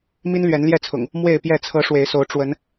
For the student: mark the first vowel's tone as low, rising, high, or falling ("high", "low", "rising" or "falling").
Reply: high